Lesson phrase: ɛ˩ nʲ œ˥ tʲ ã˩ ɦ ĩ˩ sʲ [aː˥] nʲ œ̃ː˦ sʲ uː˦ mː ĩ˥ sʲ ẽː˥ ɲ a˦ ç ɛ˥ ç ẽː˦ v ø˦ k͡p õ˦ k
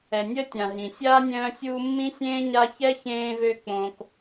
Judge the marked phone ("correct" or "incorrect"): correct